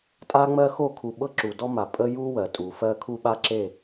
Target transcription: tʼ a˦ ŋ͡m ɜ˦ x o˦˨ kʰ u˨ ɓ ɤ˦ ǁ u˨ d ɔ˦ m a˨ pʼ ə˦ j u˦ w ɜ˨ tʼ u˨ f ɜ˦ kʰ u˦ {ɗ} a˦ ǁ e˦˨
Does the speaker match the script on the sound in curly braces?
no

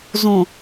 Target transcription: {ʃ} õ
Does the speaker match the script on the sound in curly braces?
no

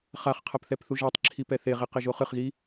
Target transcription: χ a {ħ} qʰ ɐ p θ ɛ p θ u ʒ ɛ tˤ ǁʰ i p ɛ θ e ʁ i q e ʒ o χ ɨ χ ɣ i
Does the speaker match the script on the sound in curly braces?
no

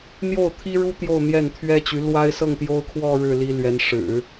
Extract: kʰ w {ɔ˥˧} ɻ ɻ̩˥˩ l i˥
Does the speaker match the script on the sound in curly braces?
yes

